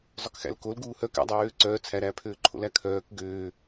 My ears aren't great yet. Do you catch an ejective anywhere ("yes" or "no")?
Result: no